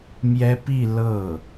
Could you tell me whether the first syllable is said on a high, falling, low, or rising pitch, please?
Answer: high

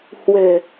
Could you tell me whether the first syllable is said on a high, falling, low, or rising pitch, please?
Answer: low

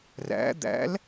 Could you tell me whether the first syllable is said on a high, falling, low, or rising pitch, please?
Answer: rising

